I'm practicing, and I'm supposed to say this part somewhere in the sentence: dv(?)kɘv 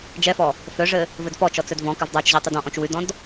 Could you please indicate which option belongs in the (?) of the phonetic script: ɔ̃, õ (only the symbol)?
ɔ̃